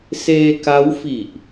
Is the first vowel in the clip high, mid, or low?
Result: mid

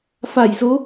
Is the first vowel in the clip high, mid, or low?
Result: low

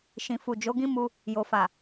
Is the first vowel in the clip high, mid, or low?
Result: high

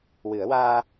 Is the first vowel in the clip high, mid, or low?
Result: high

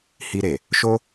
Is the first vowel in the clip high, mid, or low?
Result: high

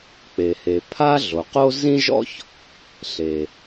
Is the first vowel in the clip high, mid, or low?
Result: mid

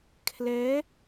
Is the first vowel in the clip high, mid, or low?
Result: mid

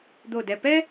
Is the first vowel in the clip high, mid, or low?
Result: mid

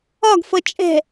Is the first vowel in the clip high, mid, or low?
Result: low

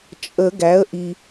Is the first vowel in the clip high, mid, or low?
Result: mid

